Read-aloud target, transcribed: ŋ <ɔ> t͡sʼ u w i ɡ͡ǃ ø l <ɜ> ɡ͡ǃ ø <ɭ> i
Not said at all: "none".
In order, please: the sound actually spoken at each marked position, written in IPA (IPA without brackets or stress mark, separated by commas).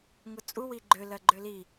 ʊ, ɜ, l